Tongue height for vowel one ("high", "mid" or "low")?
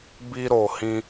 high